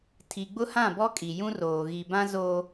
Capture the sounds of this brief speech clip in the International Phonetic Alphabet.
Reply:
tʰ i˨ ɡ͡b ʊ˦ h ã˦˨ b ɔ˦ kʼ i˨ j ũ˦ r oː˨ ɣ i˨ b ã˦ z o˦

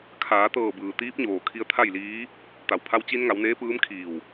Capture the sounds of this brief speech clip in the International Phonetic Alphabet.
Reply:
kʰ aː˩˧ t̪ ɤː˧˩ b ɯː˩ t̪ iː˧˥ p̚ ɲ oː˩ kʰ i˧ ə̯ t̪ʰ a˥˨ j l iː˧˥ | t̪ a˩ w pʰ a˧ w t͡ɕ i˧ n ŋ a˩˧ w n eː˧˥ p ɯː˧˥ m kʰ iː˧˩ w

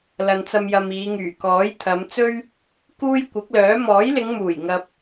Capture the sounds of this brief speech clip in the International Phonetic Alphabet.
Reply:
l ɐ˨ n t͡s ɐ˧ m j ɐ˨ m iː˨˧ ŋ yː˨˩ k ɔː˨˥ j t̪ʰ ɐ˨˧ m t͡s ɵ˥ ɥ | k uː˥ j kʷ ɪ˨˥ k̚ l œː˨˥ m ɔː˨˥ j l ɪ˨˧ ŋ m uː˨˩ j ŋ ɐ˧ p̚

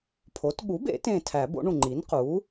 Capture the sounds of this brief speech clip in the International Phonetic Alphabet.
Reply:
pʰ o˩˥ t ɠ u˩˥ b ḛ˨˩˦ t ẽ˧˩ tʰ æ˨˩˦ b o̰˩˥ ɳ ũ˧˩ ŋ͡ǃ i˩˥ n q u˩˥

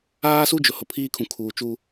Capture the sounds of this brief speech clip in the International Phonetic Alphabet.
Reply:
aː˦ s u˦ d͡ʒ ʊ˨ h ʊ˨ pʰ iː˦ kʰ ũ˨ kʰ uː˨ t͡ʃ u˨

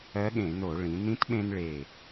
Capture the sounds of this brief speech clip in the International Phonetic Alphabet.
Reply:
ɜ˧˥ ɠ ẽ˧˩˧ n o˧˩˧ ɭ ĩ˩˧ n ĩ˧˥ t ɓ ẽ˧ n ɭ e˨˩

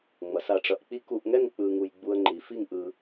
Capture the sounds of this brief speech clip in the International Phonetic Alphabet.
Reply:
ŋ͡m ʌ˩˧ s a˧˩ ʈ͡ʂ ʌ˧ ʔ k͡p i˥ k u˧ ʔ ŋ ɛ˥˧ ŋ k͡p ɯ˧ ŋ u˧ j ɡ͡b u˧ ə̯ ŋ͡ǃ i˩˧ f i˥˧ ŋ ʔ ɯ˧

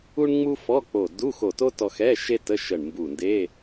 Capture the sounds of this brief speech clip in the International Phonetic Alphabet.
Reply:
u˥ ɳ ŋ͡m u˥ f ɔ˧˥˧ k͡p o˧˩ d u˧˥˧ x o˧˩ t o˥ t ɔ˧ x ɛ˧˥˧ ʃ e˥ t ə˧˥˧ ʃ ə˧˩ ɳ m b u˧˩ n d e˧˥˧

